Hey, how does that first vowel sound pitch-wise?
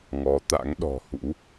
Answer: rising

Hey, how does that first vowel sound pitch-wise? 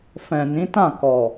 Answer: low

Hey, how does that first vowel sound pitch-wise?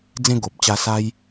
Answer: high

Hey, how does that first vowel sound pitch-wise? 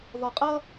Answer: low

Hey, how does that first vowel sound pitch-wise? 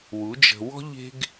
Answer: rising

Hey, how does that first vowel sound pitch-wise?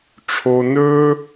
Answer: high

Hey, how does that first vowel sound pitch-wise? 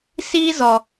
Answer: high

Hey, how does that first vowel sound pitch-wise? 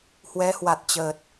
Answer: rising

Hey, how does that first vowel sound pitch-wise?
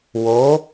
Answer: rising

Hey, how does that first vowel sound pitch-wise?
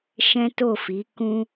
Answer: high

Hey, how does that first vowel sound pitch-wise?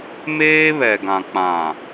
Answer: high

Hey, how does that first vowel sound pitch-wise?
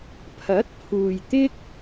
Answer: rising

